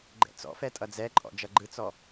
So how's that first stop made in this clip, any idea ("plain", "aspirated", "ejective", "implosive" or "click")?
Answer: click